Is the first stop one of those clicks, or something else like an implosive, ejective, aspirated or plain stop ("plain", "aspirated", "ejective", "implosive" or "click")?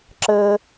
click